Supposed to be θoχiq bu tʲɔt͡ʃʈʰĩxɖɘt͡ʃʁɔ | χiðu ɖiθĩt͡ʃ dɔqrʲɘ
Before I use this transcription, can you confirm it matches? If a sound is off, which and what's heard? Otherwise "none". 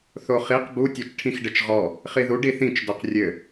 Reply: none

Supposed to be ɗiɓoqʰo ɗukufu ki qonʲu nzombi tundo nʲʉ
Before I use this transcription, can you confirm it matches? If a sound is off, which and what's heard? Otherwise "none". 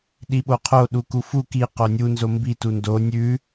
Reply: none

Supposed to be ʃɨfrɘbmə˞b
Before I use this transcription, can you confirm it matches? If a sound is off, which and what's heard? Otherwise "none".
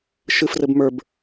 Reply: none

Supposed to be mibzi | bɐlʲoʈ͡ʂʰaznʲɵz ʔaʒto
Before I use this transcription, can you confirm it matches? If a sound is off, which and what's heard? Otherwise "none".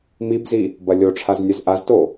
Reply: ʒ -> z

